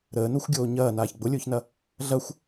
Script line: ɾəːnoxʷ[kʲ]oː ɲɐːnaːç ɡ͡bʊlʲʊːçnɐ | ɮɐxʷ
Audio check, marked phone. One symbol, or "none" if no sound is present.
ɡʲ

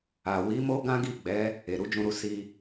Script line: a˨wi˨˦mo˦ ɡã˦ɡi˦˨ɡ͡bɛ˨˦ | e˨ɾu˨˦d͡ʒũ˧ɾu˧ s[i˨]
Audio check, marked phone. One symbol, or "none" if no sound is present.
i˧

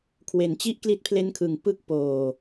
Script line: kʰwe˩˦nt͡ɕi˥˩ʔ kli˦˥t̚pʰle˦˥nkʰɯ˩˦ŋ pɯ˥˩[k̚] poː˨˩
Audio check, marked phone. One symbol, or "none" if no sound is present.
k̚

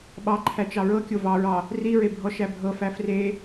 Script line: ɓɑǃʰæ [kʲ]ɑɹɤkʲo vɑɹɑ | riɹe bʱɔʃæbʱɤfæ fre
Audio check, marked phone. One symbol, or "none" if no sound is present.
t͡ʃ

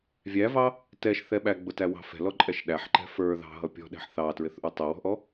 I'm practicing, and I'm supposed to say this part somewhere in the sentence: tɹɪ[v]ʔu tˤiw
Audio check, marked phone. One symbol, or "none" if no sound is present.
θ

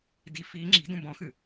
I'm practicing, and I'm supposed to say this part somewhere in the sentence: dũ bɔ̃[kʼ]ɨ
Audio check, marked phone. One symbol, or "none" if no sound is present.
x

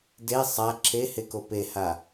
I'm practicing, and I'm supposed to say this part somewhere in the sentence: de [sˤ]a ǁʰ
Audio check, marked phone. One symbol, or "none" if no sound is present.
sˤ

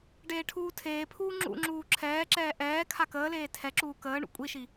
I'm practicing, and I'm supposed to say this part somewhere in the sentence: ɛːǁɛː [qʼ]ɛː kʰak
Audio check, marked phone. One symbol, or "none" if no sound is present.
ʔ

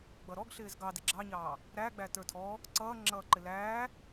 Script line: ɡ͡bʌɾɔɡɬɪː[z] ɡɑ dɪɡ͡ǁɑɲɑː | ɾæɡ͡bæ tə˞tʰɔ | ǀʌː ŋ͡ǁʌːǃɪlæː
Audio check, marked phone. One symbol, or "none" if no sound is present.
z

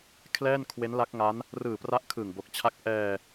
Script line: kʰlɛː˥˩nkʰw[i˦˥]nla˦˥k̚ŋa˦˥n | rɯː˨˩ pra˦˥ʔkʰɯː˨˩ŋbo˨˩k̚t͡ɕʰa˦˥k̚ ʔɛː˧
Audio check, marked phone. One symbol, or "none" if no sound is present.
e˦˥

